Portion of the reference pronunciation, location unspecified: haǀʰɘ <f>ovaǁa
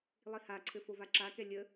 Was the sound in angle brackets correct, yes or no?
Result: yes